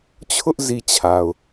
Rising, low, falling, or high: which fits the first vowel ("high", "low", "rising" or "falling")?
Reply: high